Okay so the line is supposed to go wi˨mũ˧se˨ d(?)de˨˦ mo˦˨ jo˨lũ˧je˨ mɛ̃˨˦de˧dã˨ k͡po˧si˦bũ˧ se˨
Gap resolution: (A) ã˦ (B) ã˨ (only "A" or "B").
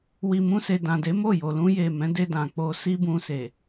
B